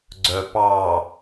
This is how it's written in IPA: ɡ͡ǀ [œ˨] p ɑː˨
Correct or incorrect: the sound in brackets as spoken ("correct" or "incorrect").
correct